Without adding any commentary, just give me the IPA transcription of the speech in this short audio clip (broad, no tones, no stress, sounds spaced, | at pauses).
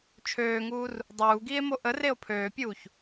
t͡ʃʰ øː ŋ uː r | dˤ uː ɡ iː e̯ m o ʔ ə r e o̯ pʰ øː pʲ uː ç